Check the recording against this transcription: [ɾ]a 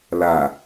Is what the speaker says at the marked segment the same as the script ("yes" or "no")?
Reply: no